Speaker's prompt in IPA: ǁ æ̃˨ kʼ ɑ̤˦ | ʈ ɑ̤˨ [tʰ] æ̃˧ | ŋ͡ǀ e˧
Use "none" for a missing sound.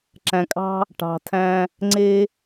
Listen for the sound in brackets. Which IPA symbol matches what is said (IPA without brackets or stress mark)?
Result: tʰ